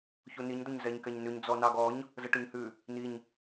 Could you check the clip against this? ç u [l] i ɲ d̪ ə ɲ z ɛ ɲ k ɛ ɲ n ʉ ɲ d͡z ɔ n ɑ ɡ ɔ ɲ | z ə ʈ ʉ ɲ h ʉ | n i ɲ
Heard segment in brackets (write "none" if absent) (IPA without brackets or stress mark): n